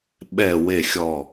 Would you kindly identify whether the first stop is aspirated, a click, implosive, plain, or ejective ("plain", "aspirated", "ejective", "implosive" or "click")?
implosive